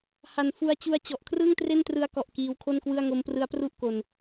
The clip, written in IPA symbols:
h a˨˩ n f u˧ a̯ t͡ɕ u˦˥ a̯ t͡ɕ ɔ˨˩ ʔ kʰ r ɯː˥˩ ŋ t r e˥˩ n t r ɯ˦˥ a̯ k ɔ˨˩ ʔ k iː˧ w kʰ o˥˩ n k w ɯ˥˩ a̯ ŋ o˦˥ m p r ɯ˦˥ a̯ p r u˥˩ ʔ k o˧ n

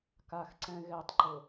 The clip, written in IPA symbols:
k a x ǀ ɛ̃ ɣ ɛ tˤ ǃ ʊ

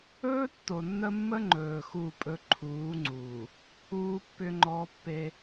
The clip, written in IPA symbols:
ɵː˦ tː o˨ nː ə˦ mː ə˦ ŋ͡ǃ ɵː˨ x u˦˨ pʼ ɵ˦ ǃʰ uː˨˦ ŋ͡ǀ uː˨ | uː˦ pː ʏ˦ ŋ͡ǃ ɔ˦ pː e˦

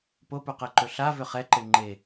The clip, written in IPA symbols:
p o p u q ɛ ǃ ɵ ɬ a v ʏ χ ɛ ǃ e ŋ͡ǃ e

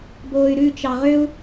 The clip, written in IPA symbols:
b oː y̯ ɾ ʉ t͡ʃ ɑ ʁ ø u̯

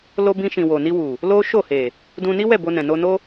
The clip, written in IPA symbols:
l o˧ b ĩ˧ ʃ ĩ˨ w o˨ n i˧ w u˨ | l o˦ ʃ o˦˨ h e˨ | d ũ˧ n i˦ w ɛ˦˨ b o˧ n ɛ̃˨ n o˧ n o˦

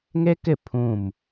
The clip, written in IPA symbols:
ŋ e˦ k ɪ˦˨ pʰ ũ˦˨ m

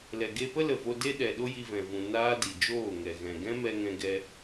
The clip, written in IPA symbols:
l ɛ˨ ɡ e˧ p ə˦ l ə˨ v o˧ d e˦ ɗ ɛ˨ ɗ o˦ j i˧ v ɛ̃˨ v ũ˨ n aː˦ d i˨ d͡ʒ oː˦˨ ŋ ɛ˨ ɣ ɛ̃˨ ɡ ɛ̃˦ m ɛ˧ ŋ ɛ̃˧ ɡ ɛ˧

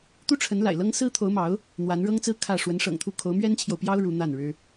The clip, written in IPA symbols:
t̪ u˥ ʈ͡ʂʰ ə˧˥ n l a̰˨˩ ɪ̯ l ɤ˥ ŋ s ɹ̩˥ t̪ʰ o˧˥ ʊ̯ m ɑ˧˥ ʊ̯ | n̪ w a˧˥ n ɻ ɤ˥ ŋ t͡s ɹ̩˥ kʰ ä˥˩ ʂ w ə˧˥ n ʂ ɤ̰˨˩ ŋ t̪ʰ u˥˩ kʰ o˧˥ ʊ̯ m ɥ ɛ˥ n t͡ɕʰ j o˨ ʊ̯ p j ɑ˥ ʊ̯ ɻ u˧˥ n̪ a˥˩ n ɻ ɻ̩˥

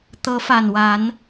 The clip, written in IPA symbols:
t̪ ɤ˨˦ f a˨˩ n w a˨˦ n

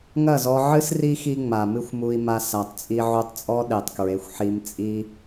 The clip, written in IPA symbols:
ŋ ɐ˦˨ z ɔ˧ ʕ ɨ˦ s r i˦ x i˦ ŋ͡m a˨ m ɨ˦ xʷ m u˧ i̯ m a˧ s a˨ tˤ t͡sʼ i˧ ʕ u˧ tˤ t͡sʼ ɔ˦ ɗ e˨ tˤ k ɹ e˨˦ xʷ ħ i˧ m t͡sʼ i˦

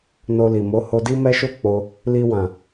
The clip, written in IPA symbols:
n o˧ l i˨ m o˨˦ h o˧ d i˦ m ɛ˦ ʃ o˦ k͡p o˧ | l i˧ w ã˨

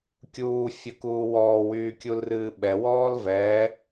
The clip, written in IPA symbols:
kʲ uː fʲ ə k uː w ɔː w yː kʲ u l r ɨː ɓ ɛ w ɔː l v ɛ

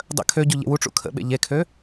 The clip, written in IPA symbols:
dˤ ə̰ kʰ ø ɟ u ʎ ḛ w u ʈ͡ʂ ṵ kʰ ə̰ ɓ ḛ ʎ e kʰ ø

